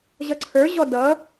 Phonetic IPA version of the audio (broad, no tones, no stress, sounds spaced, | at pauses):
ʑ ʌ ǀʰ ə˞ ʑ ɔ d ʌ